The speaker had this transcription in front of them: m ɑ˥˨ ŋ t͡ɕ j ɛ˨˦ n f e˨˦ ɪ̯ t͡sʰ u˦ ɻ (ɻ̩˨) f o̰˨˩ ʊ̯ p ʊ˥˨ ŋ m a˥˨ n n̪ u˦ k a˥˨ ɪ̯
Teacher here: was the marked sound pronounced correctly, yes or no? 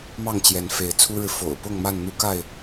yes